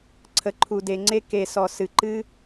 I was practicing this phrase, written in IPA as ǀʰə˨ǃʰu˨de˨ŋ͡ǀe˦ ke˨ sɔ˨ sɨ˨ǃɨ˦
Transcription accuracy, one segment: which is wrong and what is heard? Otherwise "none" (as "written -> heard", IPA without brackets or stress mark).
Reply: none